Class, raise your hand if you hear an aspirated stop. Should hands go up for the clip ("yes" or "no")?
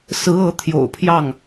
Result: yes